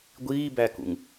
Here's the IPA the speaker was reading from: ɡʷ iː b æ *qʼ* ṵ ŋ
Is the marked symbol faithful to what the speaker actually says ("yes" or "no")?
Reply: no